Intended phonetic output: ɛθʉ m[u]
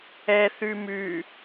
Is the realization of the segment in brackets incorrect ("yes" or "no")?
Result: yes